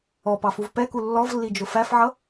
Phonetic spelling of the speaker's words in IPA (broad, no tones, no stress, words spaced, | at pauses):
ɔpɑfuv pɛku lːɔvlːid͡ʒʊ fæfʕʌ